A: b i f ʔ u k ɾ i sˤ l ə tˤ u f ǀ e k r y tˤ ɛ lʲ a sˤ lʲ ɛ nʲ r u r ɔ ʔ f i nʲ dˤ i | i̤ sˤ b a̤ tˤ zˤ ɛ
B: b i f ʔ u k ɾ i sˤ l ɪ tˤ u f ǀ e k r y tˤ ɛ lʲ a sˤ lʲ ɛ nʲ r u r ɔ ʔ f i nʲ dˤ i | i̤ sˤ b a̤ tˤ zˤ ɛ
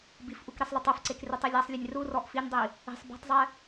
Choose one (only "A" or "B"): A